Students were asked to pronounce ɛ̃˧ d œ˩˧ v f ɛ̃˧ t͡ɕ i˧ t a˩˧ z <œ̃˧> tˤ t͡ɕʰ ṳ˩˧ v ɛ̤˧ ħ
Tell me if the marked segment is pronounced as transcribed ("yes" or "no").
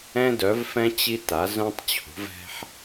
yes